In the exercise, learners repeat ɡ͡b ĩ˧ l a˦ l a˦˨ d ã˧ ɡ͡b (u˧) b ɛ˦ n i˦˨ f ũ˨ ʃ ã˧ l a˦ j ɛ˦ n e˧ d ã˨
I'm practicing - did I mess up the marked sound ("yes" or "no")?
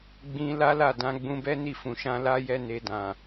yes